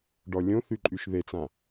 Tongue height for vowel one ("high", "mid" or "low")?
mid